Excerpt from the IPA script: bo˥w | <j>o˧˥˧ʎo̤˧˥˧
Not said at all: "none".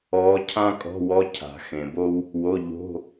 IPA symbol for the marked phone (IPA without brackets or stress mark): w